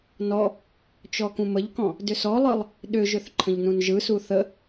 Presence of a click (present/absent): present